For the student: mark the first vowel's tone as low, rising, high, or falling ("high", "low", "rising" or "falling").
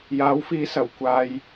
rising